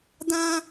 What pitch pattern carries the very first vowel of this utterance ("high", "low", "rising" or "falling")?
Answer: high